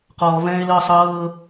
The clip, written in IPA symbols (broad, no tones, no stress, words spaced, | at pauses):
qɔːvɛ̃ːe̯lɤːsˤ ɤː